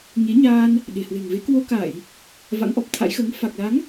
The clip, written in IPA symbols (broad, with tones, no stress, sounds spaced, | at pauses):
ɲ e˨˦ ɲ aː˧ n | ɗ e̤˨˩ h w e̤˨˩ ŋ v e˨˦ k w o˧ k a˧˩˨ j | v a̰˧˥ ŋ ʔ ɔ˨˩ p̚ t̪ʰ a̰˧˥ j x əː˨˦ ŋ f a˨˩ k̚ l a˨˦ ŋ